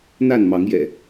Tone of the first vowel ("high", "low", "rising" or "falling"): falling